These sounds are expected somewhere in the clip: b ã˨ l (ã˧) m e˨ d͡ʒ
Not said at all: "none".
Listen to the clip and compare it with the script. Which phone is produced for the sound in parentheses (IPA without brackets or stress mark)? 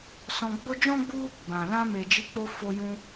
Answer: ã˧